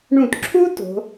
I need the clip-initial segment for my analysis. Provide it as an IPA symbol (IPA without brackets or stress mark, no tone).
ɳ